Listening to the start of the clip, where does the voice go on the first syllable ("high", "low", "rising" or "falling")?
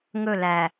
falling